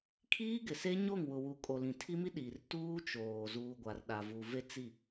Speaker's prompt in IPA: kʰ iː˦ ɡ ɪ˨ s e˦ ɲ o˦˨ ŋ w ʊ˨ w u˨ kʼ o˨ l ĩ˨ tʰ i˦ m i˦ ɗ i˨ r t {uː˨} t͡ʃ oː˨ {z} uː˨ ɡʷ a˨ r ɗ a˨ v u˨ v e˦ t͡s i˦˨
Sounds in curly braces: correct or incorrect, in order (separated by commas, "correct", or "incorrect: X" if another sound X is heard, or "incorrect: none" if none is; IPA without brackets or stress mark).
incorrect: uː˦, correct